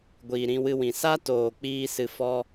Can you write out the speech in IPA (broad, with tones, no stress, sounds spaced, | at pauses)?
ɡʷ iː˨ ɾ ĩ˧ w ɨ˧ w ĩ˨ s a˦ t oː˨ k͡p iː˦ s ɨ˧ f ɔ˦